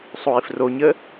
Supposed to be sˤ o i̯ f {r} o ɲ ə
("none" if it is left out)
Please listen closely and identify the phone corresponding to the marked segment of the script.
r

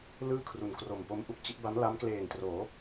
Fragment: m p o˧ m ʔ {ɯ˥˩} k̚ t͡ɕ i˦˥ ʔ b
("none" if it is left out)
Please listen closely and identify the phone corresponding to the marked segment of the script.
u˥˩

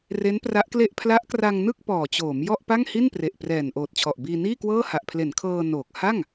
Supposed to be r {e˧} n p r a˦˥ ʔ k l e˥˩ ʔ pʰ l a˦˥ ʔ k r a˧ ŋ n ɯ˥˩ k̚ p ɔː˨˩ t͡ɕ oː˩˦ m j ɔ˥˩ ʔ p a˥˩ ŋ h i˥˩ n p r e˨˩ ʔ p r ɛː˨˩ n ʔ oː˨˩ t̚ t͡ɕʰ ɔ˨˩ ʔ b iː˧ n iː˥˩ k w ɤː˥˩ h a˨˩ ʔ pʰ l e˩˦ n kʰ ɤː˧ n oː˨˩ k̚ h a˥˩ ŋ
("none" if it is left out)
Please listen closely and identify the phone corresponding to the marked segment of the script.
e˦˥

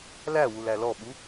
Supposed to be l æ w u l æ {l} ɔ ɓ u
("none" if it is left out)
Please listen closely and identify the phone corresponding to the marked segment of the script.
l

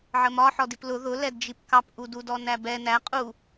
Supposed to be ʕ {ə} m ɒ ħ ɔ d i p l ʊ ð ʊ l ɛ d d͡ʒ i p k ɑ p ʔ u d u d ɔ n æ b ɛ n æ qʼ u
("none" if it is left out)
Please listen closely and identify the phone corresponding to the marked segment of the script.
ə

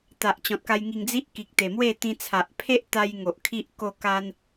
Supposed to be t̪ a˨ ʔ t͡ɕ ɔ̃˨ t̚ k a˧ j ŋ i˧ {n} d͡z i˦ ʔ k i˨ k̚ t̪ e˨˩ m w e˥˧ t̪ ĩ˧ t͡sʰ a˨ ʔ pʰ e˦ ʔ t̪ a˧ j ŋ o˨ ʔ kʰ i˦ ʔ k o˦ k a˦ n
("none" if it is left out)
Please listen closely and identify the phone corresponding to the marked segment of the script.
ŋ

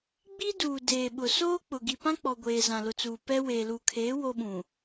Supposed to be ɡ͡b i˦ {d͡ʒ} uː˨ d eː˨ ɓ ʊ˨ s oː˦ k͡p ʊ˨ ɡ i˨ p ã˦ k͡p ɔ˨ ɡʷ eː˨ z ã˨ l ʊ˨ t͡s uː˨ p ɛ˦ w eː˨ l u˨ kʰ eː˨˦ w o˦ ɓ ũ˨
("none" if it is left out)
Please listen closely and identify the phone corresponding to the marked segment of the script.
d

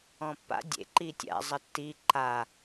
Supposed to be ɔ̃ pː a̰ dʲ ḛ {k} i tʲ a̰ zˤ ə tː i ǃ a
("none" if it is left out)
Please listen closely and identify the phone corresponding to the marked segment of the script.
ǃ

